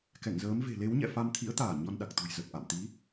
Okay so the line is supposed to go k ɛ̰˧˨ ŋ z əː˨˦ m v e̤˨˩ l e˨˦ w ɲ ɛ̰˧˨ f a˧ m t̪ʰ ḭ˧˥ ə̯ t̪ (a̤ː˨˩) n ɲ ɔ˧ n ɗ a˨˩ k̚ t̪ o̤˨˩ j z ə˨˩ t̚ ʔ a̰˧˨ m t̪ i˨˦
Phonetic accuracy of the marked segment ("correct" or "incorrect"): incorrect